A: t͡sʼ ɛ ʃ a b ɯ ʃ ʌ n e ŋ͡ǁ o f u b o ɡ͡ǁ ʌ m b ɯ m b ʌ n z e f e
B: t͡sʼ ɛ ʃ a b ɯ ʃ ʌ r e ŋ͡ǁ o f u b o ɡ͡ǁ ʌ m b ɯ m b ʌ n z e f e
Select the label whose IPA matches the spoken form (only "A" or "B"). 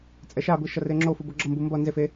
B